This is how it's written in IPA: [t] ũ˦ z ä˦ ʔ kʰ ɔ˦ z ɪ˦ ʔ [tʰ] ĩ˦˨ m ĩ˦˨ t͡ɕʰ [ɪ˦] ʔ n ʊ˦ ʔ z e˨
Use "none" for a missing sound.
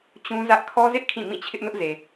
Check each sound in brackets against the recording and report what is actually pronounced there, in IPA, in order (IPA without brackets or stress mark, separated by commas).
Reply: t͡ɕ, kʰ, ɪ˦